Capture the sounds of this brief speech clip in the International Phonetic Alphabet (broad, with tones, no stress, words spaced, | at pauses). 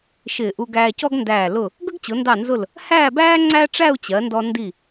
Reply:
ʃɪː˧˩ʔu˧ ɡæː˧cɔ˥ɡndæː˧˩ lʊ˧˩ | ɡə˥ɡt͡ɕʊ˩˧ndɑ˧˩nzʊ˧˩l | hæː˥˧bæː˥ ŋ͡ǀæ˥ ʈ͡ʂæ˥˧u̯t͡ɕɜ˩˧ndɔ˧ ndi˧˩